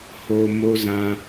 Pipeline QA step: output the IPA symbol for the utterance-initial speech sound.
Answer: h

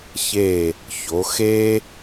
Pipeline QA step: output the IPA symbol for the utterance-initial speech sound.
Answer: ç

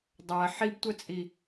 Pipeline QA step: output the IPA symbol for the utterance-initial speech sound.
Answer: dˤ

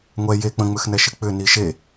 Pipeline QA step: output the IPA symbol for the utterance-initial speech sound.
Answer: ŋʷ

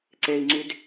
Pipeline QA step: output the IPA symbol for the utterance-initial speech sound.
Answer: ǀ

